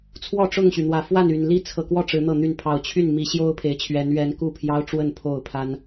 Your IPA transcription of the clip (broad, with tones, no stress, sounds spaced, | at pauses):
t͡sʰ w ɔ˥˨ ʈ͡ʂ ʊ˥˨ ŋ ɕ y˩ n̪ w ä˨˩ f w a˥˨ n y˨˩ n l i˥˨ t͡sʰ ɤ˨˩ k w ɔ˥˨ ʈ͡ʂ ɻ̩˨˦ n̪ ɤ˥˨ n̪ y˥˨ n pʰ ɑ˨˩ ʊ̯ t͡ɕʰ y˥˨ n m i˨˦ ɕ j o˦ ʊ̯ pʰ e˨˩ ɪ̯ t͡ɕʰ ɥ ɛ˨˦ n ɥ ɛ˨˦ n k u˥˨ pʰ j ɑ˦ ʊ̯ ʈ͡ʂ w ə˥˨ n pʰ o˥˨ ʊ̯ pʰ a˦ n